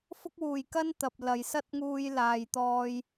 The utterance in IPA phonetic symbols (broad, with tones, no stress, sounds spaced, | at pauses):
f ʊ˥ k̚ w uː˨ j k ɐ˥ n t̪ ɐ˨ p̚ l ɐ˨ j s ɐ˥ t̚ ŋ uː˧ j l aː˨ j t̪ ɔː˧ j